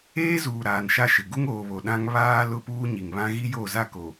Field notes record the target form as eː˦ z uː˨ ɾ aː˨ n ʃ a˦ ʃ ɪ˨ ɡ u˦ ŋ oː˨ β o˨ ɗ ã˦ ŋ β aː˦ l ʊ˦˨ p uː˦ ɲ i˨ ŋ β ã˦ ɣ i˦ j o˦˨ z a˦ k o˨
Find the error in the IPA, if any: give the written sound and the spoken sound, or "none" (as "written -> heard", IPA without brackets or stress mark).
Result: none